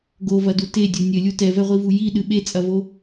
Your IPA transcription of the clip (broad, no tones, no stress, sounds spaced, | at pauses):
ɡ o v ɐ d u t e dʲ o nʲ ɘ lʲ u t ɛ v ɛ ʁʷ i v u j i ɗ ɨ ɓ e t͡sʼ ɐ v o